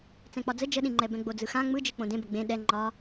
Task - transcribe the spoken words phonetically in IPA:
t͡sɛ̃k͡pɒd͡zə d͡ʒəɗĩŋ͡ǃɛbɛ̃ ɡ͡bod͡zɯxã ŋ͡mɯd͡ʒɨ k͡põdẽbə ɡ͡bẽ ɗɛ ŋ͡ǃɒ

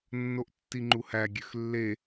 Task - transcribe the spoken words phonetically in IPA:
nːoʔtːiŋ͡ǃuhæ ɡʲøxlːe

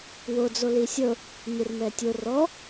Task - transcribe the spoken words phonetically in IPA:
wod͡zo lisʲɤ | ɲɯrmɛtʲo rɔ

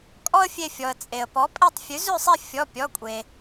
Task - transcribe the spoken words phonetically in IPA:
kʼɔ˥ə̯fʲe˧˩fʲɔ˩ə̯ t͡sʼe˩ə̯pɔ˩˥ pʼe˥˨tˤ fʲʉ˩˥zʉ˥˨sˤe˥˨ fʲɔ˩˧˩pʲɔ˩˧˩kʷʼe˩

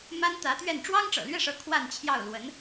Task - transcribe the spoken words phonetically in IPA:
ma˥nt̪ä˧˥t̪ɥɛ˥˩n ʈ͡ʂwɑ˥ŋʈ͡ʂɤ̰˨˩lɥɛ˥˩ʂɤ˧˥ kʰwa˥˧nt͡ɕʰjɑ˥˩ʊ̯ lwə˧˥n

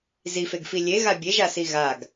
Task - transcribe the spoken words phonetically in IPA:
zifeɡfi lʲeɣa bʲeʒasi ɣaɡ

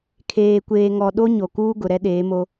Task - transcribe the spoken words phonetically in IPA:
kʰeː˨kʷeː˨ŋɔ˨ ɗo˦ɲo˨kuː˦ ɡʊ˨ɾɛ˦ɗeː˨˦mo˦

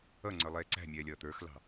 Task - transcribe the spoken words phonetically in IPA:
ʌŋ͡ǀə˞lˠɛː ǀæ̤mʲɛːlʲʌː t̪ə˞xlɑ̤

